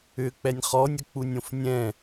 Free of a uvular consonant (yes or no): no